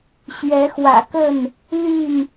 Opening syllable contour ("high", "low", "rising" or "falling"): rising